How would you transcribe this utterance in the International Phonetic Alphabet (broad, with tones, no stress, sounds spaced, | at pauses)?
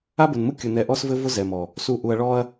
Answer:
a˦ b ʊ˨ n m u˦ kʲ ʊ˨ n ɛ˨ ʔ ɔ˦ s v ɘ˦ v ʊ˦ z ɛ˨ m ɔ˨ | s u˨ ʔ u˨ ɐ̯ ɭ ɔ˦ ɐ̯